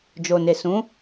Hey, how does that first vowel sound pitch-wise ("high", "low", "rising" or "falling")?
low